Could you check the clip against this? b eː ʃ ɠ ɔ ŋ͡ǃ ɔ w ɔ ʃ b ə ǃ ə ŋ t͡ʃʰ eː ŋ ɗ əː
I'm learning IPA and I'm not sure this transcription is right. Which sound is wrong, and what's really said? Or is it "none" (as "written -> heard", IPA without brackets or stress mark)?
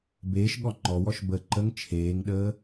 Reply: none